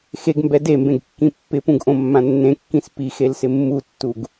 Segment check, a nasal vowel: present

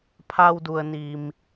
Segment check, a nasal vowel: absent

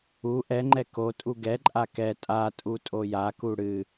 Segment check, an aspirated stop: absent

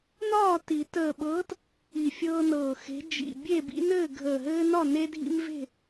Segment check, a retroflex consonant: absent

